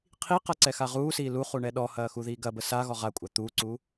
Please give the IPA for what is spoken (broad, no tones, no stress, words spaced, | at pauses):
qʰiqɐ ǀɛxaʁuːsiː lu χuɳɛɗɔhɐː xuðiːɡɐbə sa ɣɔʁakʷʼa t̪uːǀuː